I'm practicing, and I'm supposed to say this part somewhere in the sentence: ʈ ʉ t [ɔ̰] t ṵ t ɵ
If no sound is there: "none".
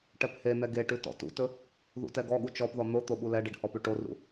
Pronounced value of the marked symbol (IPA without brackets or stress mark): ɔ̰